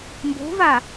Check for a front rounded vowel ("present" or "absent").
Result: absent